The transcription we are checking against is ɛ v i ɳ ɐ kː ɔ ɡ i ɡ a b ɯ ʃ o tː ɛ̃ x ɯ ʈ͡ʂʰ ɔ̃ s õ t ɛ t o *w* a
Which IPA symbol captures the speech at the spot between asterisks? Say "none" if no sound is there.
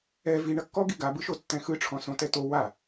w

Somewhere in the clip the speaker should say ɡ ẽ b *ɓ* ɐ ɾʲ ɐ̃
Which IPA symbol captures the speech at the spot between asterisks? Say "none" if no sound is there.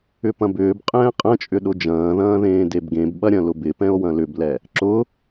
ɓ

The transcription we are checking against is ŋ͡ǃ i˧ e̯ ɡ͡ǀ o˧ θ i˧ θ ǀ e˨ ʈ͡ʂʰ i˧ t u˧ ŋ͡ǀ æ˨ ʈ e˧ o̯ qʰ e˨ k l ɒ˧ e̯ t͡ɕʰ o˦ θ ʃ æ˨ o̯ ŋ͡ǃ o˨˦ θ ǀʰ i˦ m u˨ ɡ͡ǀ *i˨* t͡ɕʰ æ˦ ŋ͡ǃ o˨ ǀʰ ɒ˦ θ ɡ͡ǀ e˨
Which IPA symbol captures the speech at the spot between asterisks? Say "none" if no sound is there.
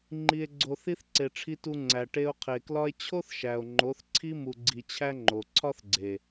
i˨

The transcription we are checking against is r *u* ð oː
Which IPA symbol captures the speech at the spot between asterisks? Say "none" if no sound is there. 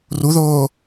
u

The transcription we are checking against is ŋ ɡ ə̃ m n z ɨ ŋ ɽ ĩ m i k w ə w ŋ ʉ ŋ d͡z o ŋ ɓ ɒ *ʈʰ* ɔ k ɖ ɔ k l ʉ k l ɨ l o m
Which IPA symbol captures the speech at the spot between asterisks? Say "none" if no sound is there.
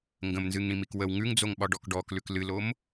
ɖ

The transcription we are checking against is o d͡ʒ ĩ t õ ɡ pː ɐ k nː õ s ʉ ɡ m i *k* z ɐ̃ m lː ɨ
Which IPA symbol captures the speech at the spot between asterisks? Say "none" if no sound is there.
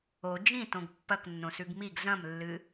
ɡ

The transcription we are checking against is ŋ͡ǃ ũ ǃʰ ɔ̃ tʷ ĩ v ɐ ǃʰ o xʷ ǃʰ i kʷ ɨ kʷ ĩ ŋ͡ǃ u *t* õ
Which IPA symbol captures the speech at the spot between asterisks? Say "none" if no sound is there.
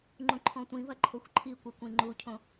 cʰ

